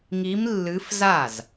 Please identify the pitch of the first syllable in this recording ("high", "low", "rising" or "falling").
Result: rising